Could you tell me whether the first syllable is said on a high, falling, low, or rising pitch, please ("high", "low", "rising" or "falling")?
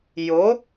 rising